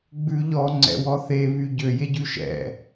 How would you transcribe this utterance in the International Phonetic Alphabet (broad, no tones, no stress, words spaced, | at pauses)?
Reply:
ɡ͡bʉ ʎɔŋ͡ǀɛ̰wɔ θeβy ɟøjeɟʉ ʃɛ̰